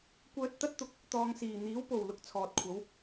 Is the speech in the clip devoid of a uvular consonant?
yes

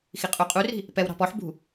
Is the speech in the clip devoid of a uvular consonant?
no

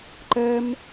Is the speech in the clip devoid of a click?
no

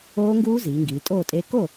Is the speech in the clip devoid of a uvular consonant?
yes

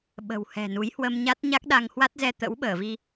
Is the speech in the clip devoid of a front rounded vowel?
yes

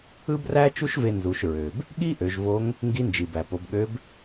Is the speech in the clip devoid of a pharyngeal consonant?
yes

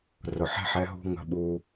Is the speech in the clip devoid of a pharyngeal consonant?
no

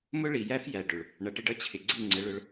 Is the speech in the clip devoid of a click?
no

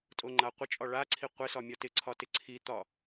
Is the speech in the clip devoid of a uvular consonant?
no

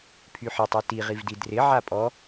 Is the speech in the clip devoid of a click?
yes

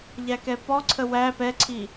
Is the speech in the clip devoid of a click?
no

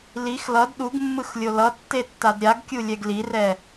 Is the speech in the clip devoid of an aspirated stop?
yes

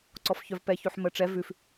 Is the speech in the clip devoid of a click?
no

